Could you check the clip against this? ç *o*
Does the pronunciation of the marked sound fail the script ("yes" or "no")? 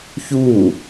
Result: yes